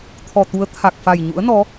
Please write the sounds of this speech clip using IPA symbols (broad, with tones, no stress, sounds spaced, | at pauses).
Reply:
t̪ʰ ɔ˨˩ t̪ u˨˦ ə̯ t̪ʰ a˨˩ k̚ f a˨˩ j ɲ ṵ˧˥ ə̯ n ɔ˨˦